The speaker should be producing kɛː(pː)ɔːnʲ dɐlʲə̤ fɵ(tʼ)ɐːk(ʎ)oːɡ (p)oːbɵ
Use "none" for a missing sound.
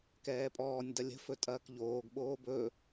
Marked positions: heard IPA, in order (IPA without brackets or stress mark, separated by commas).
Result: pʼ, tʼ, ʎ, ɓ